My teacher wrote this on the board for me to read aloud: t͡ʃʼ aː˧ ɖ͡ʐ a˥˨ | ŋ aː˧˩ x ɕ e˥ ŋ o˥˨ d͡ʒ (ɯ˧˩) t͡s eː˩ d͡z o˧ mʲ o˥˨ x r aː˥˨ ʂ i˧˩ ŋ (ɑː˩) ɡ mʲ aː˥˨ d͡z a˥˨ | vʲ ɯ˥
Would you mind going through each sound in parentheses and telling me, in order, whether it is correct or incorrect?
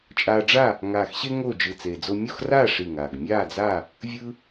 correct, incorrect: aː˩

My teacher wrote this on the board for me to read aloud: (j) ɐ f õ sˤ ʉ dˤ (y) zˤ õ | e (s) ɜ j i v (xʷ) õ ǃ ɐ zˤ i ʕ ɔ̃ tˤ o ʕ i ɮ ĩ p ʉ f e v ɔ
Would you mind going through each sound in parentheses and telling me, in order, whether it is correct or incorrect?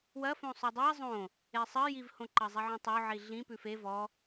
incorrect: w, incorrect: i, incorrect: sˤ, incorrect: h

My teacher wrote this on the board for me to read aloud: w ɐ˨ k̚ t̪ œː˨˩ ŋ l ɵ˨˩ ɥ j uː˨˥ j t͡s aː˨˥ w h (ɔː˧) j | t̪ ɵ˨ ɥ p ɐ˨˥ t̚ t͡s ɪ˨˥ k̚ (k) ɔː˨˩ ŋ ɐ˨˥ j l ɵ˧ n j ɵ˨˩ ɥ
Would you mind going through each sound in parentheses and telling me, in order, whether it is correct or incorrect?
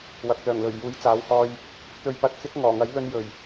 correct, incorrect: ŋ

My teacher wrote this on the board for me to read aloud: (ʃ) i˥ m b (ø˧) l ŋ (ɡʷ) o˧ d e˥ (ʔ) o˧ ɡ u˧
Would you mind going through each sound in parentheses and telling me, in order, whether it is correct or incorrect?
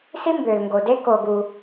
incorrect: s, correct, incorrect: ɡ, incorrect: k

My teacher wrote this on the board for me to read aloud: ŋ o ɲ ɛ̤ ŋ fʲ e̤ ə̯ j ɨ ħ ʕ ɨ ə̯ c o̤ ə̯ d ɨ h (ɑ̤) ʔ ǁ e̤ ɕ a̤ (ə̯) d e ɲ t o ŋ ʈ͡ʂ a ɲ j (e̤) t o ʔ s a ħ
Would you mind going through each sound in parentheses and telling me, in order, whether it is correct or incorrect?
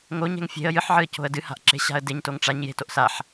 incorrect: a̤, correct, correct

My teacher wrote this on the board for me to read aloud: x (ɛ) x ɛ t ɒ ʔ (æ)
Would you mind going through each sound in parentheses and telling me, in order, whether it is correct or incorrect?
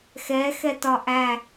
correct, correct

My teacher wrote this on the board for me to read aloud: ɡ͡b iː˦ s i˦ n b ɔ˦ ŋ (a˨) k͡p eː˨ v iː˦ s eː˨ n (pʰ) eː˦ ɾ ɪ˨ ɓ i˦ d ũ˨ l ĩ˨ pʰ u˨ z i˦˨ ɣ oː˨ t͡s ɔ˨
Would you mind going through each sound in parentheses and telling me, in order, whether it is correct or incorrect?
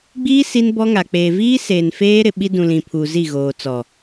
correct, incorrect: f

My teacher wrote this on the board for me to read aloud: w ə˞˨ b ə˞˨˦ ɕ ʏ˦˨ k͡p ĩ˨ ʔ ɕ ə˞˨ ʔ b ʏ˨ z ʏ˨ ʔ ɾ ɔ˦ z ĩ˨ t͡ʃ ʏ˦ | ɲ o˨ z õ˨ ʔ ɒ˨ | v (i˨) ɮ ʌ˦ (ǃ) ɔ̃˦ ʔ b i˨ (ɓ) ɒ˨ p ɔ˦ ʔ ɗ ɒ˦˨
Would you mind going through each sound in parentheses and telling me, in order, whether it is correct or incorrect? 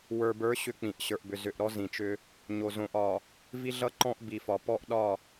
incorrect: i˦, correct, incorrect: f

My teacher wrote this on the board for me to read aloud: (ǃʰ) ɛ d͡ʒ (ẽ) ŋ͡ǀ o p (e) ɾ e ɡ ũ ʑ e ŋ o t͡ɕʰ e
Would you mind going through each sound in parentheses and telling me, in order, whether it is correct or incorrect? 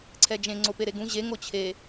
incorrect: ǀʰ, correct, correct

